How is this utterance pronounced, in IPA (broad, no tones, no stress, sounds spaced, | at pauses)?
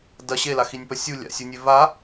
d ɐ ɕ e l a x i nʲ p ɐ sʲ u lʲ a̰ sʲ u nʲ e v a